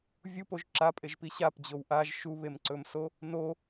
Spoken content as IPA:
vʲ u p o ʒ ǁ a pʼ e ʒ p i ɕ a p d͡ʑ o w ʔ a ʒ ʃ u β e m ǀ ɵ m s o | n o

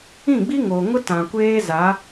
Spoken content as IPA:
ĩ˦˨ ɡ͡b i˦ ŋ oː˨ ŋ ʊ˦ t ã˨ kʷ eː˦ z a˨˦

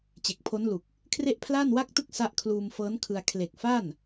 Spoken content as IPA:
t͡ɕ e˨˩ k̚ pʰ o˦˥ n l u˨˩ k̚ | kʰ r e˥˩ ʔ pʰ l aː˥˩ n w a˥˩ k̚ t ɯ˥˩ k̚ s a˦˥ ʔ kʰ l uː˧ m f ɤː˦˥ n kʰ ɯ˧ a̯ kʰ l e˨˩ k̚ f aː˥˩ n

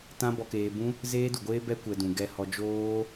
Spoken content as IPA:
t ã˦ b ɔ˧ k eː˧ b ũ˦ | z eː˦ d u˨ ɡʷ eː˦ b ɛ˦ kʷ ɛ˧ d ũ˨ ɡ ɛ˦ h ɔ˦ d͡ʒ oː˦

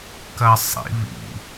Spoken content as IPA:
k ɐ sˤ ḭ β ḭ

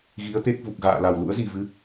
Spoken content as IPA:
ɣ i˨˦ ə̯ t̪ e˦˥ k̚ v u˨˩ k̚ ɣ a̰ː˧˨ l a˨˩ w l ṵ˧˥ ə̯ z i˨˩ v ɨ˨˦

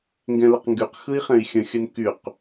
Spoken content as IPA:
ŋ ɡ ɛ̃ l ə q ŋ ɡ y q x ɯ i̯ χ ɛ̃ i̯ xʲ ə̃ xʲ ə n k y q

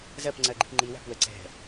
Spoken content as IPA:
z ɜ p ŋ͡ǀ ɜ ɡ͡ǃ i p ŋ͡ǃ i w æ̤ p w ə ǀ ɛ̤

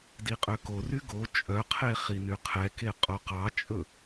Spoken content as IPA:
d i qʼ ø k o r y ɡ o t͡ʃʼ œ qʰ e χ i n y qʰ ɛ k e qʼ o q ɑ t͡ʃʼ ɵ

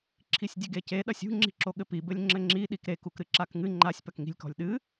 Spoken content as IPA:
ǁʰ i sʲ dʲ ɘ ɡ e c e ɗ ɐ sʲ ṳ ŋ͡ǁ i̤ ǁ o ɠ ɘ p i b ɘ lʲ ŋ͡ǁ ɘ ŋ͡ǁ i ɗ i k ɾ e k u k ɾ ɨ ǁ a k ŋ ɨ ŋ͡ǃ a sʲ p ɐ k ŋ i̤ lʲ k ɔ̤ lʲ ɗ ɨ

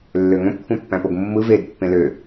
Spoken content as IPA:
lː ø ŋ õ p kʷʰ ɑ̃ pː æ̃ p o ɡ mː ɯ v e d pː ẽ l ø

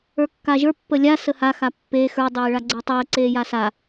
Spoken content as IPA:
ə˞ kː a ʒ ə˞ pː ə lʲ a s ə h a x a pː eː x ə˞ dˤ eː ɭ a ɡ͡ǀ əː tˤ əː ǀ eː j a s a

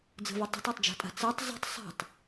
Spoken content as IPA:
d͡z ə̤ v e tˤ ə̤ tˤ a tˤ d͡ʒ a̤ tʼ a̤ t͡s ɜ tˤ z ə̤ tˤ sˤ e̤ tˤ

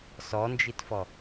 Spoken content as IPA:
s ɔ n d͡ʒ i t f ɔ

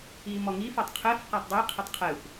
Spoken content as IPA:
i m ɔ ŋ i f ɔ tˤ qʰ ɛ f q a tˤ dˤ i qʰ ɪ tˤ qʰ ɛ xʷ

